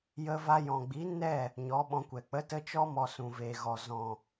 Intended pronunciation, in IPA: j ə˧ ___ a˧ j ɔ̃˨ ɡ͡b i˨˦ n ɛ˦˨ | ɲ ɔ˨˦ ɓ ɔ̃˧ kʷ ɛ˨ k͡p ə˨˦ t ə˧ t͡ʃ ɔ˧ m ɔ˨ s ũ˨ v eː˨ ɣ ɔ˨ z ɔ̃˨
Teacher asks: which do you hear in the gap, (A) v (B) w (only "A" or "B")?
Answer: A